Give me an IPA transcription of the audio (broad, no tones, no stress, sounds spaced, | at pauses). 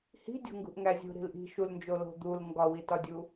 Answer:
h i̤ dʲ o̤ ŋ ɡ ṳ ʔ ŋ æ zʲ ṳ ɾ i̤ l ʔ i̤ ʃ u l n d͡ʒ o l o̤ d̪ u l ŋ ɡ ɒ w i t ɒ dʲ u